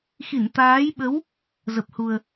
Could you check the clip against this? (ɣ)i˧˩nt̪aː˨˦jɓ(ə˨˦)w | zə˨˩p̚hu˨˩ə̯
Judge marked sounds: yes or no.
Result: no, yes

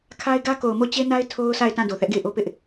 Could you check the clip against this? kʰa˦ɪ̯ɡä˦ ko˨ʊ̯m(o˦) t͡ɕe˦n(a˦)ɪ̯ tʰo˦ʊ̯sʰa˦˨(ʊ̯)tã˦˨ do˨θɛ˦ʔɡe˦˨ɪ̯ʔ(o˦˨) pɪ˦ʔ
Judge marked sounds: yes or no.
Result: no, yes, no, no

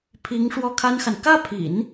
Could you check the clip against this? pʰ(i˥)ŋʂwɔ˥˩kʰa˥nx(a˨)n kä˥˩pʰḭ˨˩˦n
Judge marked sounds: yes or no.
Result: no, yes

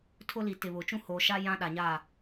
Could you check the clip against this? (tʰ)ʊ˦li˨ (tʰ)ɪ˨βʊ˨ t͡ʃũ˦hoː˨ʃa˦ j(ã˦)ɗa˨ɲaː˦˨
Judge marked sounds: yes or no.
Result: yes, no, yes

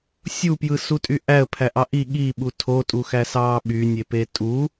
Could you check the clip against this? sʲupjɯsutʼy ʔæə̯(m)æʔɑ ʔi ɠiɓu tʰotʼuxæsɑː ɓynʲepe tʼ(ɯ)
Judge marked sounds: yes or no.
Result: no, no

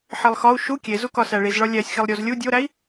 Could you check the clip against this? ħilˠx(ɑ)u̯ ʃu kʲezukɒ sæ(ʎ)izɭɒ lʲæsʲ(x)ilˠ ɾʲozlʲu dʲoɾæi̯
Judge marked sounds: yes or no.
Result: no, no, yes

